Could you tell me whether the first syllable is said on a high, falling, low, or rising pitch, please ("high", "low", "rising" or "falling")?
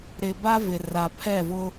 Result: low